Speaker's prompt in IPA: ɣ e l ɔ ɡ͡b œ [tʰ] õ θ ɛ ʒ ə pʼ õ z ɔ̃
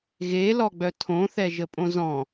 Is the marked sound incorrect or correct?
correct